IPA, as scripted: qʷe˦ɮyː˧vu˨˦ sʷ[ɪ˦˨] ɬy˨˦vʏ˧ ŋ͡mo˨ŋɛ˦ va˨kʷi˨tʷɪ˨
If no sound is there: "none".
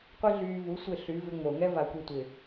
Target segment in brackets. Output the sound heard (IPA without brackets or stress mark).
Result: ɪ˦˨